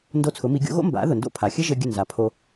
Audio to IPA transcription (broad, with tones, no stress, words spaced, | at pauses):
ndo˥˩t͡sʰʊ˩˥mi˩˥ ɡʲo̰˩˥ɣo̰˥ mba̰˩˥ðʊ˩ndo̰˥˩ pʰa˩xʲɘ˥ʒɘ˧ ɡʲɘ˥˩nza˩pʰo˧